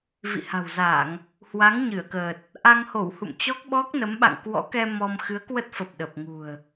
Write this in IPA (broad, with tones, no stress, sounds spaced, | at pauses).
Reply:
v ḭ˧˨ h a̤˨˩ w z a˧˩˨ ŋ | h w a˨˦ ŋ ɲ ɨ˧˩ ə̯ k əː˨˩ t̚ | ʔ a˧ ŋ h o˧˩ w h ṵ˧˨ m t͡ɕ ɔ˦˥ k̚ ɓ ɔ˦˥ k̚ n ə˨˦ m ɓ a̰˧˨ ŋ k w ɔ̰˧˥ k ɛ˧ m ɔ˧ m x ɨ˨˦ ə̯ k w ə˦˥ t̚ f ə˨˩ p̚ ɗ ə˨˩ p̚ ŋ ṳ˨˩ ə̯